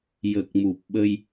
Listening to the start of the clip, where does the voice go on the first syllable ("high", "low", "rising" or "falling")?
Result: low